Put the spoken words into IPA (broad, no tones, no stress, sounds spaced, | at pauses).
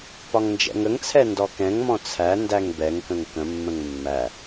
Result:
p ɒ ŋ n d͡ʒ ɛ̰ ŋ ə ŋ t͡sʰ ɛ n d ɔ k ɛ̃ ŋ m ɔ̃ t͡sʰ æ n d æ ŋ b ɛ ŋ k ə̃ ŋ k ə̃ mː ə̃ ŋ mː æ